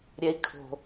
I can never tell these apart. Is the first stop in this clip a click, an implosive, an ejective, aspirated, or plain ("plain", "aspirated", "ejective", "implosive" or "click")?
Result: aspirated